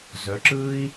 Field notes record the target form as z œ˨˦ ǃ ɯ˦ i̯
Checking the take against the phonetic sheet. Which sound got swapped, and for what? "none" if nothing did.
ǃ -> ǁ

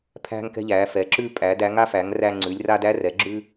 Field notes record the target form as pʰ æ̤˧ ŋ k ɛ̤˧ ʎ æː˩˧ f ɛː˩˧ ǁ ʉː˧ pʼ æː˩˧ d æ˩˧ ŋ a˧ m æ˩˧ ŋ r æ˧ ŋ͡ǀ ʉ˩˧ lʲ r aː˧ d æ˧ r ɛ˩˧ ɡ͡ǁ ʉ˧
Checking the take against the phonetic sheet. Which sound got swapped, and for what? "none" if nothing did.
m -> f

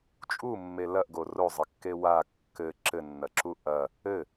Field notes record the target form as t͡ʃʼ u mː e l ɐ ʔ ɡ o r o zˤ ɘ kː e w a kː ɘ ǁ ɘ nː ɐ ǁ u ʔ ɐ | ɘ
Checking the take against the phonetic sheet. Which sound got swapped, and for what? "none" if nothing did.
none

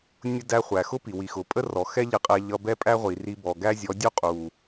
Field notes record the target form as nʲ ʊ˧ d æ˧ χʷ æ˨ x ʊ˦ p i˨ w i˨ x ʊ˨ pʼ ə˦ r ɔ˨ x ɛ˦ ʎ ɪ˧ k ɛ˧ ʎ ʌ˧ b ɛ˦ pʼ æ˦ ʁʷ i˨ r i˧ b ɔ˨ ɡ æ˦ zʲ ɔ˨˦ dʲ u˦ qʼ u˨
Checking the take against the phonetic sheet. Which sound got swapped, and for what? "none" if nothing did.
k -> qʼ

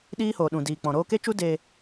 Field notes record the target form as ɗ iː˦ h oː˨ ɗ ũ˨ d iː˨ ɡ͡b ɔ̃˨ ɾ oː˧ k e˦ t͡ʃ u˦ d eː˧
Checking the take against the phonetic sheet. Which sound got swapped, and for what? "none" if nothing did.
ɡ͡b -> k͡p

